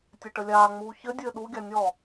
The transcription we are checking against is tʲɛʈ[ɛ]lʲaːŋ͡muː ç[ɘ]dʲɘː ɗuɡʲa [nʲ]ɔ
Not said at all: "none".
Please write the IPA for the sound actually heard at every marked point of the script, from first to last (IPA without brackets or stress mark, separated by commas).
ə, ɘ, nʲ